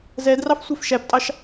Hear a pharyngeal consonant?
no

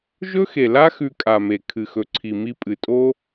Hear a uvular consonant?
no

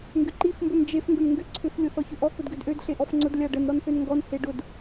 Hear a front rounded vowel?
yes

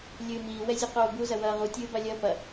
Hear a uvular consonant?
yes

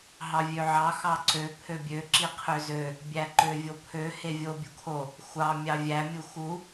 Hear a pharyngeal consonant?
yes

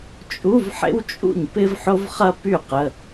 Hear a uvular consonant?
yes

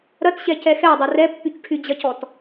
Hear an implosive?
no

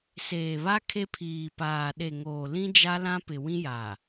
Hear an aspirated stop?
yes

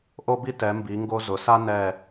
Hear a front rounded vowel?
no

